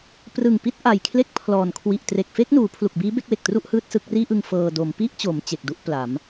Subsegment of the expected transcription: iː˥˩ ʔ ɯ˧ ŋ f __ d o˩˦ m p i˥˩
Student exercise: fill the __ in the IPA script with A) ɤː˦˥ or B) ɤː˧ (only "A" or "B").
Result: B